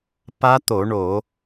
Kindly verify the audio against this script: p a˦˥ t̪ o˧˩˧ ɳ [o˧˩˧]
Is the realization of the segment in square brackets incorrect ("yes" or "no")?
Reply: no